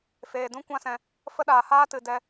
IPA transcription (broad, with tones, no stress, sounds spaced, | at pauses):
f eː˨ d ũ˦ kʷ ã˦ s ɛ̃˧ | f ə˦ ɗ aː˨ h aː˦ t ɨ˨ d ɛ˧